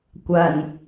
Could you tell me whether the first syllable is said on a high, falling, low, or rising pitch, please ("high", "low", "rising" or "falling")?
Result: low